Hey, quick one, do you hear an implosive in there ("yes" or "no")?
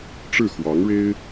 no